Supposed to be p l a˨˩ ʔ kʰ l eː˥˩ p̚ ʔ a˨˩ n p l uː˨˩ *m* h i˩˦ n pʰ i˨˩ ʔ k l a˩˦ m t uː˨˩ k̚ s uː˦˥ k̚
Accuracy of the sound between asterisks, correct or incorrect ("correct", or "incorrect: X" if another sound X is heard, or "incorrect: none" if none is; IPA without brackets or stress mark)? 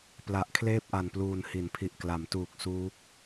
incorrect: n